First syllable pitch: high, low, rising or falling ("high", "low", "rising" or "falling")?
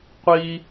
high